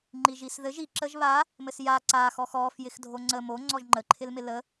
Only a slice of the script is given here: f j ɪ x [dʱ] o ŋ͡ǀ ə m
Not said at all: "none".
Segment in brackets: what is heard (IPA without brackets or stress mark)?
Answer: dʱ